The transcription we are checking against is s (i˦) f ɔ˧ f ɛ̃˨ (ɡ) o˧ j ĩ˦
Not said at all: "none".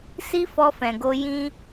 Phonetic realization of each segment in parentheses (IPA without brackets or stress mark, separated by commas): i˦, ɡ